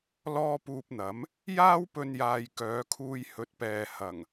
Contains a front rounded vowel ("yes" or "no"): yes